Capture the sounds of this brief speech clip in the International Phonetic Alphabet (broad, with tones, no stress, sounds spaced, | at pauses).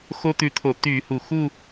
x o˥ t̪ ʉ˧ t̪ʰ o˧˩˧ t̪ y˧˩˧ h u˩ x u˥˧